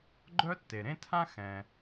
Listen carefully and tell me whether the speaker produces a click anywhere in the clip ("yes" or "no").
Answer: yes